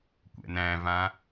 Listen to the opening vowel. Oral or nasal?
oral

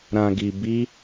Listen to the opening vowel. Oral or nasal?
nasal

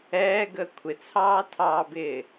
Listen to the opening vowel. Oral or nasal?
oral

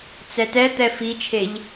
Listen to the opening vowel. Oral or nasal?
oral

